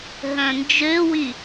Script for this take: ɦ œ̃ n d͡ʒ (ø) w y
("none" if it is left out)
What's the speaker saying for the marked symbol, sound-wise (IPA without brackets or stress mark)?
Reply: ø